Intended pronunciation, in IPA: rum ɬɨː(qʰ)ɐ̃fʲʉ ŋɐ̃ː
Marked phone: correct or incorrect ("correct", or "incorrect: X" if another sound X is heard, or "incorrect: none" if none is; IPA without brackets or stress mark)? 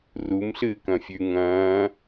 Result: incorrect: k